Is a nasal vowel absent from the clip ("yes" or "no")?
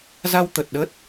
yes